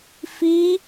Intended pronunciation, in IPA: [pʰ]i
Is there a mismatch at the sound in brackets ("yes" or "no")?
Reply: yes